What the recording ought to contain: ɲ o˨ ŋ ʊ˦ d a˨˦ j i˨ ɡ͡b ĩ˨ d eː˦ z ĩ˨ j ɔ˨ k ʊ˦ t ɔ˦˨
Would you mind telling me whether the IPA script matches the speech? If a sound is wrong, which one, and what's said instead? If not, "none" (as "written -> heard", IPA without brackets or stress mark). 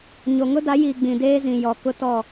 none